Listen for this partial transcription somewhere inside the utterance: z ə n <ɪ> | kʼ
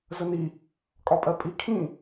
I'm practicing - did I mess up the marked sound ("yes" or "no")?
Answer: yes